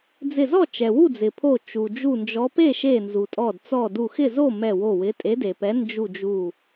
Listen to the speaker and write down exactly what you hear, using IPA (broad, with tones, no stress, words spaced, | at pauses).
d͡zɪ˧˩zɔ˥˨ t͡ʃɛ˩wu˥˨d͡zɪ˩pʰo˧˩ t͡ʃu˩d͡ʒu˧˩nd͡ʒɔ˨˦ pe˥˨ ʃe˧˩nzu˩tʼɔ˧˩dt͡sɔ˧˩ du˧˩xɪ˥˨zo˥˨ mɛ˧˩wo˧˩wɪ˨˦ tʼe˨˦de˩pɛ˨˦ nd͡ʒu˧˩d͡ʒu˧˩